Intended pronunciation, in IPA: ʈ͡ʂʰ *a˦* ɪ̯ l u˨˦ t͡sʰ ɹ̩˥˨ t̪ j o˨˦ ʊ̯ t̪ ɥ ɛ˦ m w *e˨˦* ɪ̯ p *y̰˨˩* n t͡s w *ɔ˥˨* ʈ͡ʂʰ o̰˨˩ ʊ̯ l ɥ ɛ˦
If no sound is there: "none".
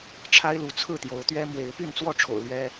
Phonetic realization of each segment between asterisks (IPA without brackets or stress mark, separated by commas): a˦, e˨˦, y˥˨, ɔ˥˨